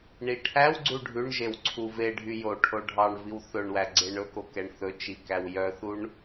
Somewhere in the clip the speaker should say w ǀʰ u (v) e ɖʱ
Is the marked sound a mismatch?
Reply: no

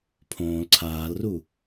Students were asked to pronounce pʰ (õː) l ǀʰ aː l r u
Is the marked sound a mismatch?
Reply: no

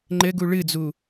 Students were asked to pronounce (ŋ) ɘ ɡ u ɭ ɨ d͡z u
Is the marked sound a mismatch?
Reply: yes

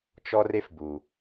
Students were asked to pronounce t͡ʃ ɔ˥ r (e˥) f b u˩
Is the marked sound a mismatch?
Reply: no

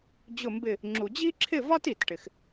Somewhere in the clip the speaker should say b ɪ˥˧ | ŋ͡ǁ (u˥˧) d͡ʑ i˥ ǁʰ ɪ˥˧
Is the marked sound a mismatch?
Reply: yes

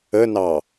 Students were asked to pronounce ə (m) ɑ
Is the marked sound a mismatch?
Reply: yes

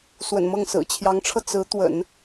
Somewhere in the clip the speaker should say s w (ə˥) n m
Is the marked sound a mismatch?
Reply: yes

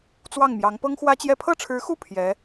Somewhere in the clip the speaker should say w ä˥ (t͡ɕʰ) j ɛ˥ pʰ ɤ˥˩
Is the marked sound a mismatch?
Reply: yes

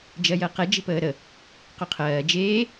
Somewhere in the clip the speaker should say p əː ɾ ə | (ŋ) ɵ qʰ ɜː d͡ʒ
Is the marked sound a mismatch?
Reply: yes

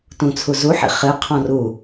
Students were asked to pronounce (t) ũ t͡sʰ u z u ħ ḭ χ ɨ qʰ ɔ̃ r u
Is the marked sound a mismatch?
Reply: no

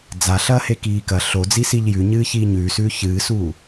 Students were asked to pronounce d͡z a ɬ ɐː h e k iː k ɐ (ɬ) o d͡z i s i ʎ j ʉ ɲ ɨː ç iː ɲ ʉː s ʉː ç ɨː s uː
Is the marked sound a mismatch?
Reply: no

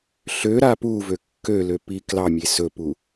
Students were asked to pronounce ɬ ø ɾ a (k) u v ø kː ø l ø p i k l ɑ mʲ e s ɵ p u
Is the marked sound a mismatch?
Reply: yes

